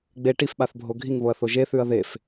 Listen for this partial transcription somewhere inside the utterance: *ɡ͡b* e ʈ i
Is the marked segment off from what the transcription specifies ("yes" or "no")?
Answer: no